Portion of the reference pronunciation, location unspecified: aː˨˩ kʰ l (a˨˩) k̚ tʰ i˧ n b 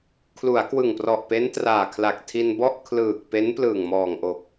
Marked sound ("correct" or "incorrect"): correct